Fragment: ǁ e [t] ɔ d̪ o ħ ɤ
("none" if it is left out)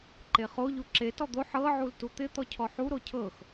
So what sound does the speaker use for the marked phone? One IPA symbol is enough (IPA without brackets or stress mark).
t